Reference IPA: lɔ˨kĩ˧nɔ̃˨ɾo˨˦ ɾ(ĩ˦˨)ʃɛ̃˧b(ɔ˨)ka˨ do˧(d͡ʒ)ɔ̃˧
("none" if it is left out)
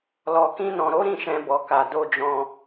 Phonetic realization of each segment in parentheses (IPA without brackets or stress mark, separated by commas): ĩ˦˨, ɔ˨, d͡ʒ